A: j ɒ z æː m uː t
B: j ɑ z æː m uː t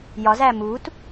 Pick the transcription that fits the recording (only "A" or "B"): A